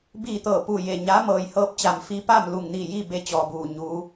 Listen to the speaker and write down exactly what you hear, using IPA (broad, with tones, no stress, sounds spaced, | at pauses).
b iː˧˩ t̪ ɤː˧˩ p u˧˩ j e˧˩ ɲ a˧˥ m ɤː˩ j h ɤː˧ p̚ t͡ɕ a˩ m f iː˧ p aː˥˨ m l u˧˩ ŋ n iː˧˩ j iː˥˨ b e˧ t͡ɕ ɔː˩ b uː˧˩ ɲ uː˩˧